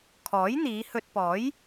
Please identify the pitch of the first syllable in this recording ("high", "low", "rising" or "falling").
rising